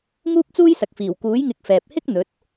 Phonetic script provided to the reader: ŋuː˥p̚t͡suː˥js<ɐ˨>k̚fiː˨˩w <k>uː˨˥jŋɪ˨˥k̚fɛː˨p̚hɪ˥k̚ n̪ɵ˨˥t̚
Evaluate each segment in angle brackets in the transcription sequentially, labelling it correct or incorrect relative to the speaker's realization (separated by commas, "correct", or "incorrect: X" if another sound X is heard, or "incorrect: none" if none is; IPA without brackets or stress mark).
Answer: correct, correct